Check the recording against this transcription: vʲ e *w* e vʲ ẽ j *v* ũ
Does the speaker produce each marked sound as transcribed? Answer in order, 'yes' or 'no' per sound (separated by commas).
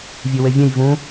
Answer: yes, yes